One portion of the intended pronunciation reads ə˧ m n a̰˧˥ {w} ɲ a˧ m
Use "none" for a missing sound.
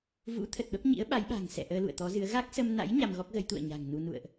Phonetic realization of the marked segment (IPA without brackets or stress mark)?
j